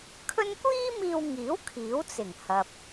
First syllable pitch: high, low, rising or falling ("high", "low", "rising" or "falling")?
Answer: high